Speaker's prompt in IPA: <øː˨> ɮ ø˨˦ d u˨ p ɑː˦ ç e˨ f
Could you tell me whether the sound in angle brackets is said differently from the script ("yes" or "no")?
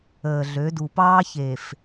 yes